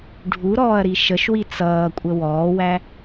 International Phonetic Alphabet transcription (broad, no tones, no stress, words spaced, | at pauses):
ɖʱuɾɔːɐ̯ɾi ʃəʃwi t͡sʌːkʷʼə wɔːwæ